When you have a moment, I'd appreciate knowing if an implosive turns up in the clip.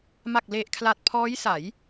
no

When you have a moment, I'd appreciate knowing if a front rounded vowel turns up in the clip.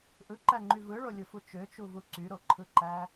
yes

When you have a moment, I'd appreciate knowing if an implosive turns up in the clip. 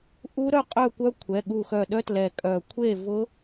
yes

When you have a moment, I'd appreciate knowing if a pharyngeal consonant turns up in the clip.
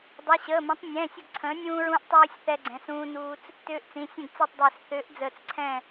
no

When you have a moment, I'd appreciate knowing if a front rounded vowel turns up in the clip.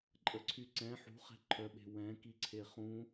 yes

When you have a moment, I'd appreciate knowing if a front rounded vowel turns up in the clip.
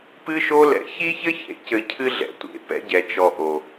no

